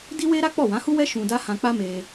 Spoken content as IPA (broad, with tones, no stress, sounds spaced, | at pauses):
d i˦ w e˦ ɾ a˦ k͡p ɔ˦˨ w ã˨˦ h u˦ w ɛ˦ ʃ ũ˧ d a˦ h ã˧ k͡p a˦ m e˧